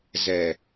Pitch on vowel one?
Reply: low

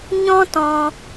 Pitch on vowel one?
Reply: high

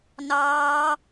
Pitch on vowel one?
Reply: high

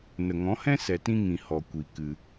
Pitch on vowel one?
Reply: low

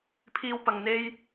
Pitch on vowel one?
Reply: high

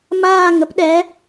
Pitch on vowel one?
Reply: falling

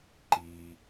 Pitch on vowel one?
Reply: low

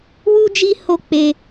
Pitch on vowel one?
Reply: high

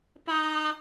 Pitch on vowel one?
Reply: high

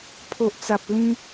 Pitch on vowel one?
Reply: low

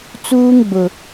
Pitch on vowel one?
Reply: high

